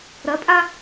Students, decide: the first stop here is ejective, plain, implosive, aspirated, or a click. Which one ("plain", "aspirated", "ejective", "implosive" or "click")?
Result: ejective